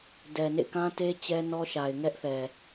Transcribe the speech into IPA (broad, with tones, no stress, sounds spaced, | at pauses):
d ɛ˨ n ḛ˦˨ k ã˦ t e˦ t͡ɕ ɛ˦ n ɔ˦ ʃ a˨ ɪ̯ ŋ ɛ˦ ʔ θ ɛ˨